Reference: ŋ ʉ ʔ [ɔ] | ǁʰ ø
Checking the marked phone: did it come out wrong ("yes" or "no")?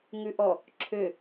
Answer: no